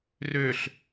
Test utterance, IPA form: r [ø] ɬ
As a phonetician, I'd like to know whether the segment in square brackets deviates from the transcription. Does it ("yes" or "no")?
no